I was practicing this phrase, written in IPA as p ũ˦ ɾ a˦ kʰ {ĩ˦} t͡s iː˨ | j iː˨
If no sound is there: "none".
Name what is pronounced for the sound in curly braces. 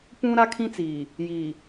ĩ˦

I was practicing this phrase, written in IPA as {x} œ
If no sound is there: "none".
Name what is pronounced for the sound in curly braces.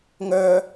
ŋ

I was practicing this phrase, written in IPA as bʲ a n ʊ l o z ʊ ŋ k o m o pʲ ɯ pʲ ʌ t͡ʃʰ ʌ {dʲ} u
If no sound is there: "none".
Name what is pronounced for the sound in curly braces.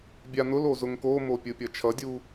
dʲ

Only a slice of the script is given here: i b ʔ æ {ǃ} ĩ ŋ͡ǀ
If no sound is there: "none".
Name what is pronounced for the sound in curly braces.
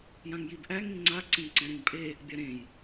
ŋ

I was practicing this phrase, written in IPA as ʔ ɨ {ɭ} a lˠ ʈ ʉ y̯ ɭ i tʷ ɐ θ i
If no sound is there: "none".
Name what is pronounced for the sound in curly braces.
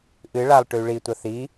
ɭ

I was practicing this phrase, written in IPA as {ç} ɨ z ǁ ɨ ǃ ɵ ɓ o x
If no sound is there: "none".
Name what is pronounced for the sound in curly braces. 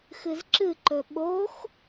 x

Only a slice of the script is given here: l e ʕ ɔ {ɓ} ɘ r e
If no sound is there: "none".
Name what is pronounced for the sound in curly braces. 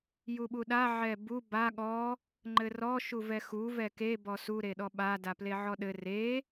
ɗ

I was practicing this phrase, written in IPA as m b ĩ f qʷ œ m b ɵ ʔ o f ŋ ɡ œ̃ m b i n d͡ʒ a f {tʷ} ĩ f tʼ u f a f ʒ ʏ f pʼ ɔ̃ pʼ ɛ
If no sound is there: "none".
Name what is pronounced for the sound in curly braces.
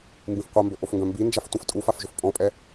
tʷ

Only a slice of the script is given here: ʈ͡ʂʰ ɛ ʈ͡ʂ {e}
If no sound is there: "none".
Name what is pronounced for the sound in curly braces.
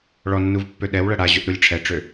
ø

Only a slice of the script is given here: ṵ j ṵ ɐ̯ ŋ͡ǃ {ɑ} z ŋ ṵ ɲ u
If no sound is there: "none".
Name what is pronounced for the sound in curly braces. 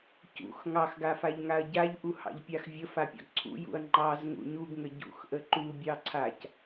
ɑ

